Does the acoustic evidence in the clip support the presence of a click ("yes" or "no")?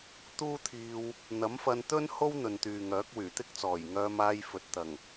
no